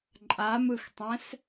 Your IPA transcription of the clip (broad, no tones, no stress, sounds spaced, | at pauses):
ǃʼ a m ɯ x tˤ ɛ̃ s